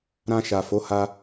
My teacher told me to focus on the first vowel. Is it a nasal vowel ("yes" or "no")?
yes